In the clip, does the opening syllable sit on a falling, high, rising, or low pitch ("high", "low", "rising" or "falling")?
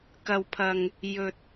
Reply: low